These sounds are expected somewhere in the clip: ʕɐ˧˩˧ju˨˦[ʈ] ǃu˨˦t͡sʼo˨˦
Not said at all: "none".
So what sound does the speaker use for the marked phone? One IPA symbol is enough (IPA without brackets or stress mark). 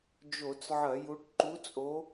ʈ